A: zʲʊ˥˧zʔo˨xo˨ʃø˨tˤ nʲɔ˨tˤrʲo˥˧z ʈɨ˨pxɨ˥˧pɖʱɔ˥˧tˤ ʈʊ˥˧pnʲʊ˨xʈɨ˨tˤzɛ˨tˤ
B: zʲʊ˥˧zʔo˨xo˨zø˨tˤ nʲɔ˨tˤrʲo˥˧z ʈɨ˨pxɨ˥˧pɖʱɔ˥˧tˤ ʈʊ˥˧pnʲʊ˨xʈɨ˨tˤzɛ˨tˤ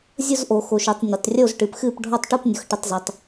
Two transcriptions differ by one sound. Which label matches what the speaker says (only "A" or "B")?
A